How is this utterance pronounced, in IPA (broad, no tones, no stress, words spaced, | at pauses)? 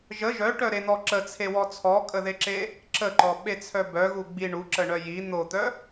ʒə ʒœʈœɾen̪ɔ ǁət͡sʰewɔ t͡sʰɔkʼəðeǁe | ǁəǃɔɓet͡sʰœ bœɣu ɡ͡bi ɳuǁəɳœ ji n̪ot̪œ